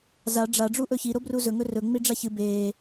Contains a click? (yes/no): no